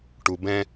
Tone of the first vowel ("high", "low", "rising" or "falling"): low